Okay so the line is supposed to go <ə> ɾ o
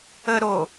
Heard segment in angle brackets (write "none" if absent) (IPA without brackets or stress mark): ə